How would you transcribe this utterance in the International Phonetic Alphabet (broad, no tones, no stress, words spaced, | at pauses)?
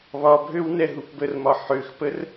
βɒbʱøw nɛɦupbərmɒ ħøxpər